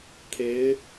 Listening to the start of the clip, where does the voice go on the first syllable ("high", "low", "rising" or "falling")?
rising